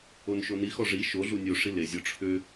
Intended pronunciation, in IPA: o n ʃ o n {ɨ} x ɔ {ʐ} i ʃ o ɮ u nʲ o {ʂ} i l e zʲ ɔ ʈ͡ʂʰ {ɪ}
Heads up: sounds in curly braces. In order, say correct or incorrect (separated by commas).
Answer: incorrect, correct, correct, incorrect